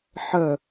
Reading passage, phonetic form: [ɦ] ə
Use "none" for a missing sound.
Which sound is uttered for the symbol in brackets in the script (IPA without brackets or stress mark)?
ħ